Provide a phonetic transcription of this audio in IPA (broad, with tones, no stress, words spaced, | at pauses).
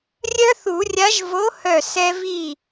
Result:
rʲœ˦θu˨˩˦rʲa˨˥ʒ vo˨˥hœ˧˩ sɛ˦vi˥˩